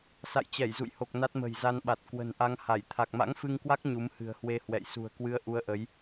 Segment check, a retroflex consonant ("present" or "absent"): absent